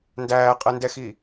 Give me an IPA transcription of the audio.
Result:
n d æː qʼ ɛ n d ɛ x i

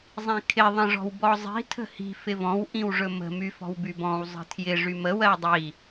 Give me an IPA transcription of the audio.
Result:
zˤ ĩ kʰ ɪ ðˤ ə̃ ʐ ɔ̤ w b ɔ zˤ i̤ tʰ ə̤ h i̤ f ɪ v ɔ̃ w ʔ ĩ w ʐ ɵ m ə̤ m y f ɔ̤ w b y b ɔ̃ w zˤ ə̤ tʰ j ɪ ʐ y m ə w ɜ w dˤ i

